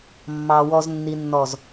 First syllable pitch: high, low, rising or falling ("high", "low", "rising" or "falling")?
low